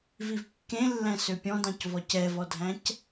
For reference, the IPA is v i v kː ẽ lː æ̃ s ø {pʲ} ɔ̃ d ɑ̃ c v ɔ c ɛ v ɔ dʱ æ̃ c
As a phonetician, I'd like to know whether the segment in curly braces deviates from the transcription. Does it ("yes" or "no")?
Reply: no